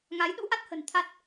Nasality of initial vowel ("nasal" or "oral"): oral